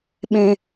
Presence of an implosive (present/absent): present